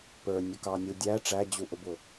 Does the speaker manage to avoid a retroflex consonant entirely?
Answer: no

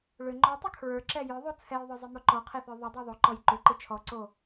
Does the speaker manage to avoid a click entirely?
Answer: no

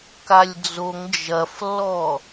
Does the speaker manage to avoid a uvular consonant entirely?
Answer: yes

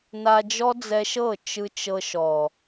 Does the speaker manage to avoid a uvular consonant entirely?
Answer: yes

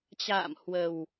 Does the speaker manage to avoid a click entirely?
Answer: yes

